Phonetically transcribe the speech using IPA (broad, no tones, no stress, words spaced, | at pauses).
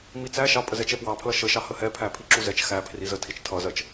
mit͡sæ ʃɑpʼə zɛt͡ʃɛpwɑpʰlʌ ʃə ʃɑhəhɛpʰæ pʰiǁuzɛt͡ʃ xæ pʰrizə tʰit͡ʃtʰʌzɜt͡ʃ